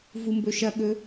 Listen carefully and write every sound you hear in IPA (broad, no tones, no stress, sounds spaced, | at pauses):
v u m b ɵ ʃ ɐ ɠ ɵ